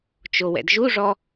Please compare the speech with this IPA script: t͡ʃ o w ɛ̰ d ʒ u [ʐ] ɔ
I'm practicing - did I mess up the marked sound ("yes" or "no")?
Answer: no